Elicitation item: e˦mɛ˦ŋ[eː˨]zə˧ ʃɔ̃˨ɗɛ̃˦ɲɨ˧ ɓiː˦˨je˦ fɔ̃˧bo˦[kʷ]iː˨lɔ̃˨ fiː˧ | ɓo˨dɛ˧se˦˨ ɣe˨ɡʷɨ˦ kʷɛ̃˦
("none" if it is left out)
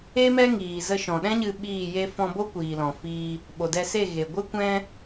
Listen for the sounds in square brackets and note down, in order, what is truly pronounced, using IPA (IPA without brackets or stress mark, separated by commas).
iː˨, kʷ